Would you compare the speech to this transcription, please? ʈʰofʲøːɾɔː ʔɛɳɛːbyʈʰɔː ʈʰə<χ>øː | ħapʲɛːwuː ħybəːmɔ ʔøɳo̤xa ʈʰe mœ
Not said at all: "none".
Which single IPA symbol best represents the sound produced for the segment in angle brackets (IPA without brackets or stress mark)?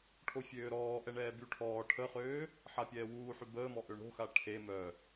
χ